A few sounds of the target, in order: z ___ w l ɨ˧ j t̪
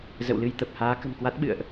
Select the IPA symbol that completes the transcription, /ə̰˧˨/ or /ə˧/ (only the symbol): ə̰˧˨